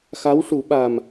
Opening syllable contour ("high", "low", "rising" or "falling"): rising